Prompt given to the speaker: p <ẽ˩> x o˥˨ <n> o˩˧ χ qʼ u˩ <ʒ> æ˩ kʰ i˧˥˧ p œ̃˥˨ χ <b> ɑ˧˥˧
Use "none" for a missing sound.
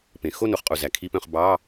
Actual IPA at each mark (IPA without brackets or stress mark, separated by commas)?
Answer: ẽ˩, n, z, b